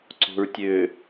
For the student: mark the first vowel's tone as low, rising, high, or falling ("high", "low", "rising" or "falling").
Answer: low